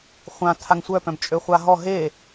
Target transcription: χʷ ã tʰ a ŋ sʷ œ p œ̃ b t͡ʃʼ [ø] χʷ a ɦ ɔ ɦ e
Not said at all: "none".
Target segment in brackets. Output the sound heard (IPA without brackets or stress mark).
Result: ø